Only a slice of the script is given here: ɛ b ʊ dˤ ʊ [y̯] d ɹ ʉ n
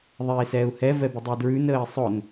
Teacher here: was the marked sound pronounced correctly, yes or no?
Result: no